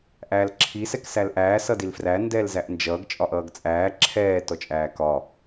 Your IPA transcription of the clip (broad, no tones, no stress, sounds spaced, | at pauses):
ʔ æː l ǁʰ i s ɛ k s æ l ʔ æː s ʌ d i l f r æ n d ɛː l z æ ʔ n d͡ʒ ʌː ɡ t͡ʃʼ ɒ ʔ ʌː ɡ t͡sʼ æː ǁʰ ɛː t ɔ t͡ʃʼ æː k ɒ